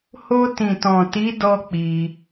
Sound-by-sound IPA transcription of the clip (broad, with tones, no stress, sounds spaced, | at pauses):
h o˧ t ĩ˨ t ɔ̃˨ t i˨˦ d ɔ˦ k͡p i˧